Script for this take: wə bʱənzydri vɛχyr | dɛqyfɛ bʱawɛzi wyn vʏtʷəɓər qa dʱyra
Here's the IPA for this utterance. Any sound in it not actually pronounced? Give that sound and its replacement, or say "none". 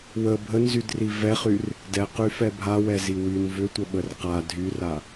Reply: none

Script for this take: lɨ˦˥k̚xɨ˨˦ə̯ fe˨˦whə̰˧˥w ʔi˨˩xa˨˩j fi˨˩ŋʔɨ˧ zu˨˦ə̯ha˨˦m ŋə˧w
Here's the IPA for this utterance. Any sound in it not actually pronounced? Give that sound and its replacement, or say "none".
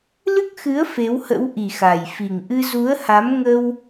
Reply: none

